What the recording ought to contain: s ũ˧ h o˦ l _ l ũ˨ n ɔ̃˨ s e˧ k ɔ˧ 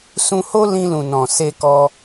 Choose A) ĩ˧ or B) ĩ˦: A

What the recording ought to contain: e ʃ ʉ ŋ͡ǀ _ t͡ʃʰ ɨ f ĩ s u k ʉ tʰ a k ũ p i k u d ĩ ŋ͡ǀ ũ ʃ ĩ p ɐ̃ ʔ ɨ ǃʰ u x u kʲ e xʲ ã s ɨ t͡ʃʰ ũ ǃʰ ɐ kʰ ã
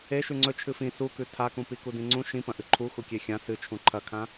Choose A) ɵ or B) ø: A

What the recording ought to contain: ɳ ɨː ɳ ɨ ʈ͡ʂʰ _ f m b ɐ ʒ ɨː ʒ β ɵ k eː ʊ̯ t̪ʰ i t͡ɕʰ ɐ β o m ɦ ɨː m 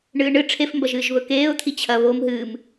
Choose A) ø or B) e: B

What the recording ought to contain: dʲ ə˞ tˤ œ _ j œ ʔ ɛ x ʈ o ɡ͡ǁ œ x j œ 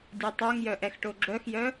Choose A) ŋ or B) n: A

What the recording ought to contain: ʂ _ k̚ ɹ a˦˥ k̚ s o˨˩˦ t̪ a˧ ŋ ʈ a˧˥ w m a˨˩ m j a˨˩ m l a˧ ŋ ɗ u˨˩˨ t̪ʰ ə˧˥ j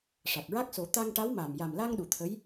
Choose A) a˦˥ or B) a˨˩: B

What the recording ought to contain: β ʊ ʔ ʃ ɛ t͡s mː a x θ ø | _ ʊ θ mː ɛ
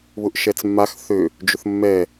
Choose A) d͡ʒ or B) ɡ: A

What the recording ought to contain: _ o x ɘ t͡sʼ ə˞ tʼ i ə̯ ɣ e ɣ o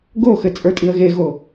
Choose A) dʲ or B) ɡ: B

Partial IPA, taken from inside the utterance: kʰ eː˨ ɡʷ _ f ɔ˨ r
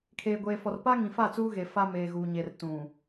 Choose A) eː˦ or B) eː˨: B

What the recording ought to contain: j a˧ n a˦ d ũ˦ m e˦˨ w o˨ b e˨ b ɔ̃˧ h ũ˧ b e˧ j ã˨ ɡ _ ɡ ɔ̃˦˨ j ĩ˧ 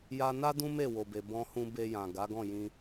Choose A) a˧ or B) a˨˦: B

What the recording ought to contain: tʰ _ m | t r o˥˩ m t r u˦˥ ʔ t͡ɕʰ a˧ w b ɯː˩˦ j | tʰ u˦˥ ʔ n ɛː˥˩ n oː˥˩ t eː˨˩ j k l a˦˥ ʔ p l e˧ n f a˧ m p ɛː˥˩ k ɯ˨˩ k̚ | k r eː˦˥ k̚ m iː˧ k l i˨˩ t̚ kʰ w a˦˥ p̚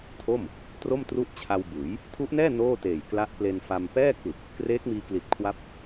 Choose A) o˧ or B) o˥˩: B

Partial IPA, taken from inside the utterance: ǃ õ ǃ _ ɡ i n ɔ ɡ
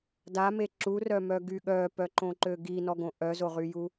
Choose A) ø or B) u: A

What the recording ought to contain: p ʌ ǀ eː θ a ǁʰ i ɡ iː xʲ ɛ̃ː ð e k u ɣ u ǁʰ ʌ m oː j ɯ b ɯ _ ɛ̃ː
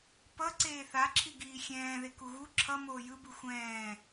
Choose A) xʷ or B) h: A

